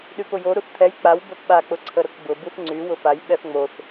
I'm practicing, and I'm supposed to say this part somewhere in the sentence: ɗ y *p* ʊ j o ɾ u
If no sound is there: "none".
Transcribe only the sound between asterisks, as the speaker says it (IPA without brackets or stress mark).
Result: p